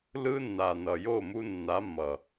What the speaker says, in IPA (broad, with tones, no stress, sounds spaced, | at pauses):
l ɯ˦ nː a˨ n ʌ˨ j o˦˨ m u˦ nː a˨˦ mː ʌ˨